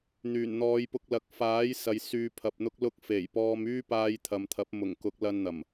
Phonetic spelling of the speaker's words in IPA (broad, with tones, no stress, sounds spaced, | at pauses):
n̪ yː˨˩ n n̪ ɔː˨˧ j p ʊ˧ k̚ l ɐ˨˥ k̚ f aː˨˥ j s ɐ˨ j s yː˨ pʰ ɐ˨ p̚ n̪ ʊ˥ k̚ l ʊ˧ k̚ f e˨˩ j p ɔː˧ m yː˥ p aː˧ j t̪ʰ ɐ˨ m t̪ʰ ɐ˨˥ p̚ m ʊ˨˩ ŋ k ʊ˨˥ k̚ l ɐ˧ n n̪ ɐ˨˩ m